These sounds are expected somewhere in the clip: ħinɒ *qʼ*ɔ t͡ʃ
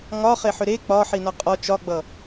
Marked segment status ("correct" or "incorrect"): correct